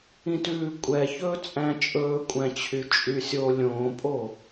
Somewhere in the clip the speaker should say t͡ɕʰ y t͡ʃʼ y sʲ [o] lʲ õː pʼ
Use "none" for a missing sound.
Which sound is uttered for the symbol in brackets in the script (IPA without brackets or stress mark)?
o